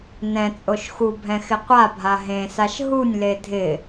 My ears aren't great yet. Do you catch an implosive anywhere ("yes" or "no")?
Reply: no